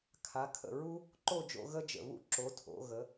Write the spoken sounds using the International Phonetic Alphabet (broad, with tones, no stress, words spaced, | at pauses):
kʰa˩˧kʰə̰˧˩ɹu˥ | ǃo˥˧d͡ʒo̰˧ ɣə˥d͡ʒə̰˧˩βṵ˥˧ ǁo˩˧tʰo̰˩˧ɣə˩˧